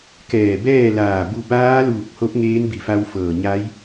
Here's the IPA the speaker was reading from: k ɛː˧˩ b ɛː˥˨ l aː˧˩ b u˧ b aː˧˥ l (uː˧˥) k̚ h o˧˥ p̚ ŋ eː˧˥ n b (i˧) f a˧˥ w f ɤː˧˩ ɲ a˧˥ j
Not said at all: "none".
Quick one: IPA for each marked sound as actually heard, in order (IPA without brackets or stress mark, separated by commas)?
uː˧˩, i˧˩